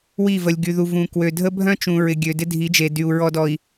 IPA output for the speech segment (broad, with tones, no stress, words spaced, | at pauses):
wi˦˨və˨lʲ ɡy˨ðu˨ vũ˨kwø˨ dʱə˦bʱœ̃˦t͡ʃũ˨ ɹɪ˨ ɡʲø˨dɪ˦ dʱi˨˦d͡ʒe˨dy˨u̯ ɹɔ˨dɔ˨i̯